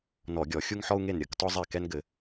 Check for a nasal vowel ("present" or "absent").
absent